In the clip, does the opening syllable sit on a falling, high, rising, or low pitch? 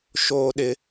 high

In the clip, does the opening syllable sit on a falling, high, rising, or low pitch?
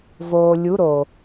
low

